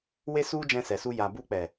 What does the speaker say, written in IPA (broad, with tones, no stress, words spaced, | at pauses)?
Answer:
we˧su˧ d͡ʒɛ̃˧sɛ˨su˧ ja˨ bu˧k͡pɛ˨